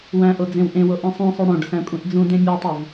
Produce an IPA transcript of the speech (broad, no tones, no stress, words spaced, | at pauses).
wæ̃ʔo d͡zẽwʔẽwo ʔĩsˤõsˤo ɽõɖ sæ̃kʷʼẽʔd͡zũdẽ mʲɒtˤuv